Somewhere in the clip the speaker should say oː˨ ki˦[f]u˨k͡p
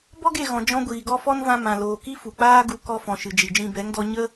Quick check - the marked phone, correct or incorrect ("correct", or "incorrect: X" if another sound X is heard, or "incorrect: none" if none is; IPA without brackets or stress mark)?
correct